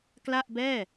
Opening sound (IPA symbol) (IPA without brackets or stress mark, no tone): k